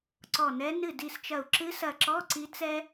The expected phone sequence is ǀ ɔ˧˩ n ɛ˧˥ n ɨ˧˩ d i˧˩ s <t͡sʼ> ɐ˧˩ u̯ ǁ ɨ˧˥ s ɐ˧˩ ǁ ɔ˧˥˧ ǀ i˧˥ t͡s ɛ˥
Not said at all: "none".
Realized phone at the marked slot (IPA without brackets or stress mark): t͡ʃ